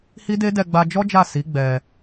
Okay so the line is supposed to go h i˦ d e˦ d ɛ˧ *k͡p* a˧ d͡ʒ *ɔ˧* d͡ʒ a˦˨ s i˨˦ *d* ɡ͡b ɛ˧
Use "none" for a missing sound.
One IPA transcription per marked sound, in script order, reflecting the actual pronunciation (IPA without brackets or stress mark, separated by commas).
ɡ͡b, ɔ˦, none